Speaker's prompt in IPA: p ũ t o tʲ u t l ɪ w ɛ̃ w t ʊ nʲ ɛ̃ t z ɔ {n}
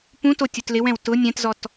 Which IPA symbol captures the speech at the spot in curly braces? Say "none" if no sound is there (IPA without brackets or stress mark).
t